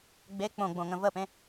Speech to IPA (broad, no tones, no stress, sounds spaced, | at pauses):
ɡ͡b e k͡p õ ɡ͡b õ ŋ ə̃ v ə p ẽ